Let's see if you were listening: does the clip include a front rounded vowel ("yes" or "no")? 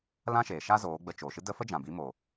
no